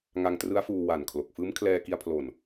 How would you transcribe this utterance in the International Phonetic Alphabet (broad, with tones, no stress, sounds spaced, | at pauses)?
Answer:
ŋ a˧ ŋ t r ɯ˦˥ a̯ f uː˧ w a˨˩ n kʰ l o˨˩ k̚ f ɯː˦˥ m kʰ l ɛː˧ k i˧ a̯ pʰ l o˨˩ n